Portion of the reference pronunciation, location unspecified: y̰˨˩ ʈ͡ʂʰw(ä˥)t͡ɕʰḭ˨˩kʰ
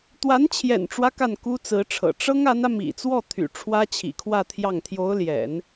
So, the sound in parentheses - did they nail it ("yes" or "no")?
yes